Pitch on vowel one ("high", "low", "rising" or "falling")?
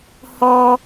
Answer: high